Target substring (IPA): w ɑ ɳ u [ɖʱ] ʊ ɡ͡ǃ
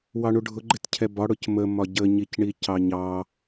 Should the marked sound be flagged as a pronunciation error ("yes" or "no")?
no